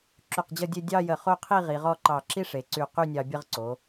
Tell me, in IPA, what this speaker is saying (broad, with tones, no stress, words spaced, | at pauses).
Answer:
ǁy˧˩qd͡ʑʌ˥˧dʲe˥˧ dʲɑ˥˧jə˧˩χo˥˧qʰi˥˧ ʁi˩˧ʁɔ˥˧ǃɑ˧˩ ǁi˥ʂe˩˧ ǀy˧˩ qy˥˧nʲɑ˧ bʲə˥˧ʁǀo˩˧